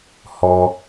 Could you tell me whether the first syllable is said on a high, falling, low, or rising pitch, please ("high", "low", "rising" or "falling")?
high